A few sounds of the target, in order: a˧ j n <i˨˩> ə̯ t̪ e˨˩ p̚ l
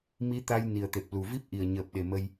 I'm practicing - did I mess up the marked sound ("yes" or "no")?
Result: no